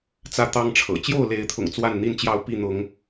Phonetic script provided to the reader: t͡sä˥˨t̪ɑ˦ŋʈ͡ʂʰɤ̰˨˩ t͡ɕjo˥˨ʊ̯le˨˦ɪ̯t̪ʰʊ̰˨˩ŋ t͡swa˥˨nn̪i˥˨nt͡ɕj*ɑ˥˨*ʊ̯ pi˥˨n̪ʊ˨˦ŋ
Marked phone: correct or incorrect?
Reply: correct